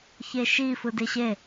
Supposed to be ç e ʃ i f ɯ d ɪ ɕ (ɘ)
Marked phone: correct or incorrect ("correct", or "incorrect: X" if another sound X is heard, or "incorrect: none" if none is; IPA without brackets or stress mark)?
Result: incorrect: e